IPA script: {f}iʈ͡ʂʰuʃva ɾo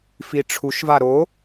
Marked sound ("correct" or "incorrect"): correct